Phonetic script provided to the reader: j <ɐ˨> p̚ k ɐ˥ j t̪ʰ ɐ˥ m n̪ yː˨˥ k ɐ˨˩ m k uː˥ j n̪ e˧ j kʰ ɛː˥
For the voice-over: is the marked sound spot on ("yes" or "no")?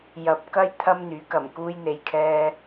yes